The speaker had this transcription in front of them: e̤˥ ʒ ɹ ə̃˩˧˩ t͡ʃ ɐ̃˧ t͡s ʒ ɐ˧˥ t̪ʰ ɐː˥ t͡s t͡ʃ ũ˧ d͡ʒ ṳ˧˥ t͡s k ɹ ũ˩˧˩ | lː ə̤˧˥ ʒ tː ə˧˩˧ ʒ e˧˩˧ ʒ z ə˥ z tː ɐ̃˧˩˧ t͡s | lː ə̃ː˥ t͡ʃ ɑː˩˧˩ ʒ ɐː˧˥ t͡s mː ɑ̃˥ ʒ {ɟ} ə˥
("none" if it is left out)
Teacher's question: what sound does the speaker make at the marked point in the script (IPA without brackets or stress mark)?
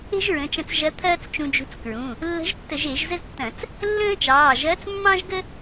ɡ